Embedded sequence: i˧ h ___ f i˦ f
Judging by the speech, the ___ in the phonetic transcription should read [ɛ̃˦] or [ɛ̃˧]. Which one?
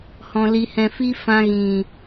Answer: ɛ̃˧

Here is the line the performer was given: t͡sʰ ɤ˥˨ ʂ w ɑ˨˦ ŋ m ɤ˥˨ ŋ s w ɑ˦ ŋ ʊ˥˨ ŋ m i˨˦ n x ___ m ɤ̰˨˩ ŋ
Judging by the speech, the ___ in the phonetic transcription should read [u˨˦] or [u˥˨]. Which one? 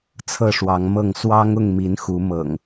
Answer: u˨˦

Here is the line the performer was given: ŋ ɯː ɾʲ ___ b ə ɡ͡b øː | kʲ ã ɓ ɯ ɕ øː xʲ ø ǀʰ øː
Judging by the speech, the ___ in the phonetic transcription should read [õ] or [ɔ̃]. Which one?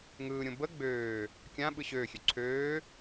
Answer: õ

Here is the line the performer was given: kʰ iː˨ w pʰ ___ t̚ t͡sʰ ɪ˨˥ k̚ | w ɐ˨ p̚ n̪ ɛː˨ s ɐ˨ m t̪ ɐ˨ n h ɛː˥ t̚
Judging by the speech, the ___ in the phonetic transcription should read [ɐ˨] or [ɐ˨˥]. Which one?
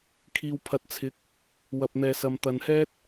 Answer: ɐ˨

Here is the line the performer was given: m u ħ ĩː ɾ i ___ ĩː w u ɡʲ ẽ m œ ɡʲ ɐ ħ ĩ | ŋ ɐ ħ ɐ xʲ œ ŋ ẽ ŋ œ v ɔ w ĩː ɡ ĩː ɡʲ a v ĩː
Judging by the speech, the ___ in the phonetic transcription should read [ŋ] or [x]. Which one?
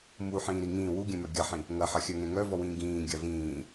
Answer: ŋ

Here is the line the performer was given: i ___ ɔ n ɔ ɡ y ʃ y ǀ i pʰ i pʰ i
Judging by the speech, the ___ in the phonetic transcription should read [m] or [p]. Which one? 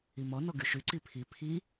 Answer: m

